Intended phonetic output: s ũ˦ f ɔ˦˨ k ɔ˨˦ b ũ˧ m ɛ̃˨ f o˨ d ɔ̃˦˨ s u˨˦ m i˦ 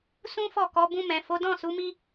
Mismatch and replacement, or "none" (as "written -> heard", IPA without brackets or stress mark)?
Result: o˨ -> o˨˦